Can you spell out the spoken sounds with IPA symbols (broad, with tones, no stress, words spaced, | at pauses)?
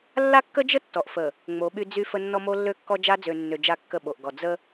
lːa˦kːə˦d͡ʒə˦ tːɔ˨ʔfə˨ | ŋ͡mo˨˦ɓy˦ d͡zy˦fə˦ nːɔ˦mo˦lːø˦kːɔ˦ d͡ʒa˦d͡zø˨nːø˨ d͡ʒa˦kːə˦˨ ɓo˨ʔɡɔ˨ d͡zə˦